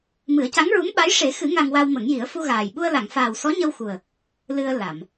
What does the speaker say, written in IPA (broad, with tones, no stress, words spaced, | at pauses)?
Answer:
mɨ˨˩˦ə̯ca˧˥ŋɹu˧˥mɓa˧˥j ʂe˨˩˦xɨ˨˩˦ ŋa˧ŋwa˧wmə˨˩˦ŋji˨˩˦ə̯ fu˧ɣaː˨˩j ɓu˧ə̯la˨˩˨ŋfaː˨˩w sɔ˧˥ɲə˧wxu˨˩ə̯ | lɨ˧ə̯ la˨˩˨m